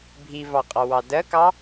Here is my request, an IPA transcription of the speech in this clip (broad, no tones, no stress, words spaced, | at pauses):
bʱivɑqʼɑwɑ dɜkɑ